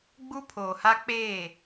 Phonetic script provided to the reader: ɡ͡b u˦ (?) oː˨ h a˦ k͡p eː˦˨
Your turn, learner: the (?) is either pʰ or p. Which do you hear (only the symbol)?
pʰ